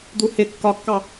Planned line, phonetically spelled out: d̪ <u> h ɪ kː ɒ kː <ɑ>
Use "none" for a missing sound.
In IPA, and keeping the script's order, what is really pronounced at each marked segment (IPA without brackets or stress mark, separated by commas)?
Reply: u, ɑ